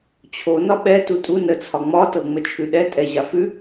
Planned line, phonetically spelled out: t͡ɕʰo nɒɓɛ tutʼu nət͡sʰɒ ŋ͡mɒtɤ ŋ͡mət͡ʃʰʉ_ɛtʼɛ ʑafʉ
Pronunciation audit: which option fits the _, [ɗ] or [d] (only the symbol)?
ɗ